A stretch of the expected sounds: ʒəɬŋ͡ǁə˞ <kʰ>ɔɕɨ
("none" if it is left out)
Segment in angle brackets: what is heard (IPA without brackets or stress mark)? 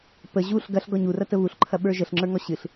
ŋ